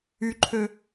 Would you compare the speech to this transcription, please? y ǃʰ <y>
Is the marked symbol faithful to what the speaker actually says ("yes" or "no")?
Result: no